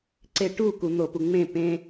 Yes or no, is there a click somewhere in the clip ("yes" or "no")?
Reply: yes